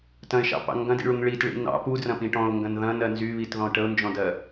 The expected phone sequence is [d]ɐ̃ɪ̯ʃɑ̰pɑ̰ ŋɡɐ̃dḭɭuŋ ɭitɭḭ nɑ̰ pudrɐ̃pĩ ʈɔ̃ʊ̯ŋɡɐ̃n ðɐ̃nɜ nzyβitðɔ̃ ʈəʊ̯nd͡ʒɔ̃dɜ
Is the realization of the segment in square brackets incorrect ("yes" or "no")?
yes